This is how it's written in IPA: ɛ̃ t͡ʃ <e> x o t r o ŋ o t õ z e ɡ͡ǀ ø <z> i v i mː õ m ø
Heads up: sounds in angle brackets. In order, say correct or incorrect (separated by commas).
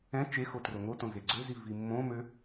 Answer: correct, correct